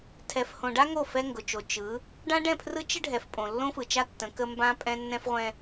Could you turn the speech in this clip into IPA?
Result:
tʰ ɛ˨ f h õ˨ ɖ a˦ ŋ o˦˨ f ɛ˦ ŋ ɡ ʊ˨ t͡ʃ o˨ t͡ʃ ɯ˨˦ | ɖ ã˦ ɖ ɛ̃˦˨ pʰ r ɯ˦ t͡ʃ ə˦ ɖʱ ɛ˨ f pʼ õ˨ lː õ˦ f ɯ˨ t͡ʃ a˦ tː ə̃˨˦ k ə˦ m b ã˦ pʼ ɛ̃˦ nː ɛ̃˦ f ʁʷ ɛ̃˦

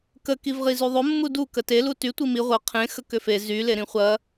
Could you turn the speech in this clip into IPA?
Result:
k ə k i v ʁ i z y ðˤ o mː u d u k ə t e l u t y tʷ i m i ʁʷ ə qʰ ẽ x ə k ʏ f e z y l e ɾ ĩ χʷ ɐ

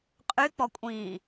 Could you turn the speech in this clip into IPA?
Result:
qʼ y k͡p ɔ kʷʼ ĩː

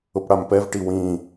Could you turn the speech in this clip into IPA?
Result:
ʊ p ɽ a m p ɛ v ʈ i w ĩ

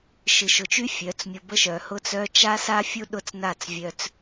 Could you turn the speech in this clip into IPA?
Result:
ʃ ɨ˨ ʃ ʊ˨ t͡ʃ y˦ fʲ œ˨˦ t͡s mʲ ʊ˧ b ə˦ ʃ œ˨ h ʊ˦ t͡s œ˦ t͡ʃ a˦ s a˦ fʲ u˦ ɗ ʊ˦ t͡s n a˦˨ t͡s vʲ œ˧ t͡s

